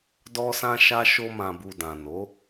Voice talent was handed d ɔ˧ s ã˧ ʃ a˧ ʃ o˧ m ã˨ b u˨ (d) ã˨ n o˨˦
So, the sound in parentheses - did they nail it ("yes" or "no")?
yes